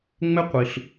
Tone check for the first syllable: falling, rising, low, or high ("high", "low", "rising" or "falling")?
high